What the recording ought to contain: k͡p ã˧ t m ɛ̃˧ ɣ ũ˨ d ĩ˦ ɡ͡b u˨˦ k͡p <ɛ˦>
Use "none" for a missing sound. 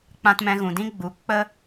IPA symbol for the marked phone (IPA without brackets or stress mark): ə˦